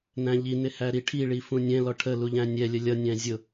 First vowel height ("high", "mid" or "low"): low